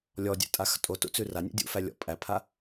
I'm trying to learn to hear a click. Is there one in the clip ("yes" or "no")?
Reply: no